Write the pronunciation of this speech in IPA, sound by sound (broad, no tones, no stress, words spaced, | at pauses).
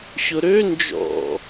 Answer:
ɕʊɾø nd͡ʒɔ̰